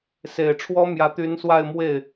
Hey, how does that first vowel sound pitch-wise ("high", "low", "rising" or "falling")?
low